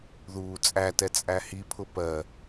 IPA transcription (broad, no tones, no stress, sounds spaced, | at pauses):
ð uː t͡sʼ æ t ɛ t͡sʼ æ h i pʰ ʊ p ɜ